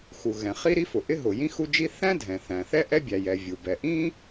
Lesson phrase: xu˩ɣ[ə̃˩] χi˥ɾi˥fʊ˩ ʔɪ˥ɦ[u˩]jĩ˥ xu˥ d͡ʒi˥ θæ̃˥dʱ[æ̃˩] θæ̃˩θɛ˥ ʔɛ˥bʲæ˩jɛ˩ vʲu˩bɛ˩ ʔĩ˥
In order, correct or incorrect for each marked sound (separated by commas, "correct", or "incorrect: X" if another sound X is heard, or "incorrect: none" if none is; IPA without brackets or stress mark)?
incorrect: ɛ̃˩, incorrect: ʊ˩, incorrect: ɛ̃˩